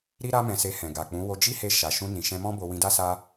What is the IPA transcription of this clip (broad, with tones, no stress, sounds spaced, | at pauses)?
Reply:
ɾ i˦ ɾ a˦ m ɛ̃˧ s e˧ h ɛ̃˨ ɡ a˨ k͡p ũ˨˦ w o˧ d͡ʒ i˦ h e˧ ʃ a˨ ʃ ũ˧ n ĩ˨ ʃ ɛ̃˧ m ɔ̃˦ b o˧ w ĩ˧ d a˦ s a˦